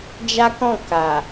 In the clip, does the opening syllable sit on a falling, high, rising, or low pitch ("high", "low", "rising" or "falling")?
high